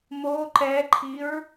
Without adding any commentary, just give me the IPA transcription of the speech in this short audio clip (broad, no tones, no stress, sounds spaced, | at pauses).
m o ǃ ɛ ǃʰ i ɹ